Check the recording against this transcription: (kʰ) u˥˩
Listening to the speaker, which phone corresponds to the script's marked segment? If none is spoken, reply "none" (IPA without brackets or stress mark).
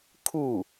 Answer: kʰ